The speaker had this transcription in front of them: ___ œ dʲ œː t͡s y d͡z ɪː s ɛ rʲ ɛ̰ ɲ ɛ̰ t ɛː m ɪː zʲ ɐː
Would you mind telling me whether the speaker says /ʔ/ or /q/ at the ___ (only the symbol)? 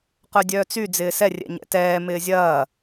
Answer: q